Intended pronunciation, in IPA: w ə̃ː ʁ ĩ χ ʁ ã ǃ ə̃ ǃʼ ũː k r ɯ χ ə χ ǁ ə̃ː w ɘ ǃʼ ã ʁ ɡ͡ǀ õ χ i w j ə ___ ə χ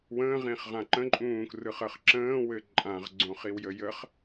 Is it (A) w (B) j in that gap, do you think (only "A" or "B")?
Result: B